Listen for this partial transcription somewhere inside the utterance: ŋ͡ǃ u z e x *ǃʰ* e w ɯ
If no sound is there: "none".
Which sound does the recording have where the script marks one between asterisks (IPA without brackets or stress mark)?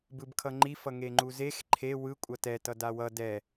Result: ǃʰ